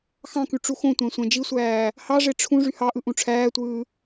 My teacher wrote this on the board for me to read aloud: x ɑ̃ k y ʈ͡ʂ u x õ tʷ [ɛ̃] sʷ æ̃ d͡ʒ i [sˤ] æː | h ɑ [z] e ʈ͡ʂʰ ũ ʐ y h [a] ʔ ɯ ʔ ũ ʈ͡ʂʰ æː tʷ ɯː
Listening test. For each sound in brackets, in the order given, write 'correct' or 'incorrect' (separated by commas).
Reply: incorrect, incorrect, incorrect, incorrect